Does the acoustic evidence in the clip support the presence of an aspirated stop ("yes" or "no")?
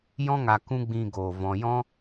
no